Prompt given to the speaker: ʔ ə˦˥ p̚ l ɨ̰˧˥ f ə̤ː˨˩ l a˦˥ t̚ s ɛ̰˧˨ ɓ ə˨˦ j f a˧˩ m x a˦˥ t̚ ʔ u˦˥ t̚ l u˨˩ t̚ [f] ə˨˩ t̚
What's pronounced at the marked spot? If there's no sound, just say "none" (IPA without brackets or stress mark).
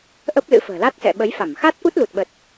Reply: ɓ